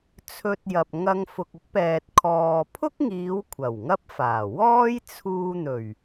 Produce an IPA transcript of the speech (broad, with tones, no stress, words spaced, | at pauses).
t͡sʰɵ˧t̚jɐ˨p̚ ŋɐ˧ŋfʊ˨k̚ɪ˥k̚pɛː˨t̚ kʰɔː˨pʰʊ˥k̚ŋiː˨˧w kʷʰɐ˨˩wŋɐ˥p̚faː˨˩ wɔː˥j t͡sʰuː˧n̪ɵ˨˩ɥ